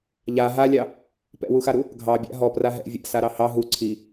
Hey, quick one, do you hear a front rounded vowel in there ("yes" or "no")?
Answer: no